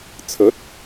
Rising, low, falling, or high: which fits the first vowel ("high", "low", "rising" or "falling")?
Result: rising